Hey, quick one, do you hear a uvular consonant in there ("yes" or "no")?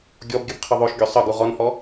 yes